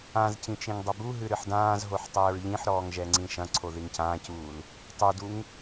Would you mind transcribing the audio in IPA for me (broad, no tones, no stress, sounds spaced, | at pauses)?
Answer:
ã z c ĩ t͡ʃ ĩ ŋ dˤ ɐ b u ɦ ɨ ɾ ɨ ħ d ãː z ɦ o ħ tˤ ɘː ɹ ʎ ĩ ħ ɾ ɔː ŋ ʒ ɛ ŋ͡ǀ ĩ ʃ ɐ̃ ǀʰ o ð i ŋ c ãː c uː l | tˤ u d u ŋ